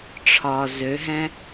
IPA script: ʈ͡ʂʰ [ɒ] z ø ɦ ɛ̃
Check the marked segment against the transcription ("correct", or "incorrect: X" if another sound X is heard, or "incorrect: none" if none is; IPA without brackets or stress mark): correct